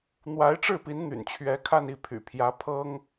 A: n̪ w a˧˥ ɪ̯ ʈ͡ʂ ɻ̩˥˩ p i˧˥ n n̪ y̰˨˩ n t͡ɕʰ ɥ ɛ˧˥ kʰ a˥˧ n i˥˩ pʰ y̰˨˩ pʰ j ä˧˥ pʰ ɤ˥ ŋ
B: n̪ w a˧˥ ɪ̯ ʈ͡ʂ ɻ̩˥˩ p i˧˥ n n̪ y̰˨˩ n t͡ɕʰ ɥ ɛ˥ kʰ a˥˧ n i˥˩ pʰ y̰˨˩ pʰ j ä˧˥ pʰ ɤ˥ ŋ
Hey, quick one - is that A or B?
A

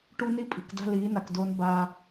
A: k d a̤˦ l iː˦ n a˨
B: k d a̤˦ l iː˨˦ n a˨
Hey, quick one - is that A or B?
B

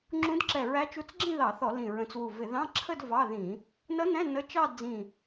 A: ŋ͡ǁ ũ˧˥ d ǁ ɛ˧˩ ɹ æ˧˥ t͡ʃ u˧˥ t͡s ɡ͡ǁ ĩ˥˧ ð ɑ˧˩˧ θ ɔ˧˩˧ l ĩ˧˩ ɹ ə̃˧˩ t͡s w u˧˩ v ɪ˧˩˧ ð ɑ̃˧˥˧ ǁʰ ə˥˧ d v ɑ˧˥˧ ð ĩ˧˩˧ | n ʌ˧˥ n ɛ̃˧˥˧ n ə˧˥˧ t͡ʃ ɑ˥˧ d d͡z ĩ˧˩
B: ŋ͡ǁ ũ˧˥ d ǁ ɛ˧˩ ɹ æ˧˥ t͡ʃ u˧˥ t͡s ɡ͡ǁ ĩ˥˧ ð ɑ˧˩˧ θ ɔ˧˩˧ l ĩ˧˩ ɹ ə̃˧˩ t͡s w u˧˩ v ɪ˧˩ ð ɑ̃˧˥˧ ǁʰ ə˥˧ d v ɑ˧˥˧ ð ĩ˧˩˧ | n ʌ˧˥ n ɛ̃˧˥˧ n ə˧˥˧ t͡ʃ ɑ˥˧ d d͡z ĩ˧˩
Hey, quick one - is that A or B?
A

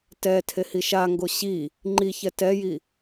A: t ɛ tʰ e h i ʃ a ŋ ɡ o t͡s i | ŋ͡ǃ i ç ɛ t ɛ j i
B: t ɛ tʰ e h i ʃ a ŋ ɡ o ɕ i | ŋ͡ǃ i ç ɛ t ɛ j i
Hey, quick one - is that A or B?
B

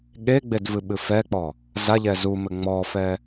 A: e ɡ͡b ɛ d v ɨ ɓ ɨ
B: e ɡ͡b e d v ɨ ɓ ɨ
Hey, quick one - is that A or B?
B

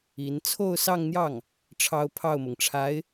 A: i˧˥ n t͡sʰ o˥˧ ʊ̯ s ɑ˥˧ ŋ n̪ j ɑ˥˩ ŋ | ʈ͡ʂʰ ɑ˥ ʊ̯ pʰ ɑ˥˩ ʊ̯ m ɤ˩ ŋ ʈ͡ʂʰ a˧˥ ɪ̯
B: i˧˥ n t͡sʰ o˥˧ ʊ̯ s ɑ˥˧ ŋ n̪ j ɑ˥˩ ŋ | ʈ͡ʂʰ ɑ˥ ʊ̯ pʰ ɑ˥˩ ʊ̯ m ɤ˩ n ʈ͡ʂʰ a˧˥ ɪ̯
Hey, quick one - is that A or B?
A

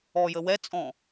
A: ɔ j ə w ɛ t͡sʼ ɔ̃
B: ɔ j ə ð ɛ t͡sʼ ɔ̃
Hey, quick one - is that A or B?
A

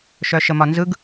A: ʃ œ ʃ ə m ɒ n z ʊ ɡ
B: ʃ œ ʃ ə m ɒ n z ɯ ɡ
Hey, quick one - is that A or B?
B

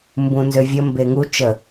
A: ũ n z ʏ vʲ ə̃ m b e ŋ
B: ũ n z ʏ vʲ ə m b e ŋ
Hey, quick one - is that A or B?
B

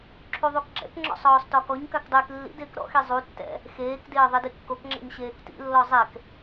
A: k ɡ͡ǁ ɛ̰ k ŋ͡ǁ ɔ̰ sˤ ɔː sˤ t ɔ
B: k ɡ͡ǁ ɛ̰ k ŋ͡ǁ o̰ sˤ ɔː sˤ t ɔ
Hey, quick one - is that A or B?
A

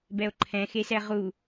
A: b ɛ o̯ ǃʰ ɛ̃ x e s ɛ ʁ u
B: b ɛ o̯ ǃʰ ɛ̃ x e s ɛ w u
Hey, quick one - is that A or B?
A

